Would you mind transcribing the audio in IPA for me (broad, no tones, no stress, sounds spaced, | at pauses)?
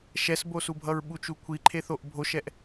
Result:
ʃ ɛ s b o s u bʱ ʌ ɹ ɓ u t͡ʃ u kʷʰ i ǃʰ e θ o ʔ bʱ o ʃ ɛ ʔ